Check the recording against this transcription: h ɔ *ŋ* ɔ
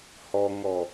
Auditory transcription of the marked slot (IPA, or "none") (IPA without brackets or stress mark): ŋ